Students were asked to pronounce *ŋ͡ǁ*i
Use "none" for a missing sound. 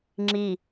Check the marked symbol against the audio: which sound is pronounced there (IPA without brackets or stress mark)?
ŋ͡ǁ